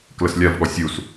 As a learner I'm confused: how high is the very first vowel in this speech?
mid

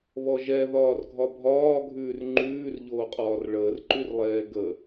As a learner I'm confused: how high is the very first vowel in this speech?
mid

